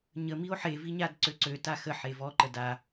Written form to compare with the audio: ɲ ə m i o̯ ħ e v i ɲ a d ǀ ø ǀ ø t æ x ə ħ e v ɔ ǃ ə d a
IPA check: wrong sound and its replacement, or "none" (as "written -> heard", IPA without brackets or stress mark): æ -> a